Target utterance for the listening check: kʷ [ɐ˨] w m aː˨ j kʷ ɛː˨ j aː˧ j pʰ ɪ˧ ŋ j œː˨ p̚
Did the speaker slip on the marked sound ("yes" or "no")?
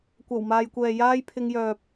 yes